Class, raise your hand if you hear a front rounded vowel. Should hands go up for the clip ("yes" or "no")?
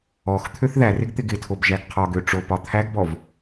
yes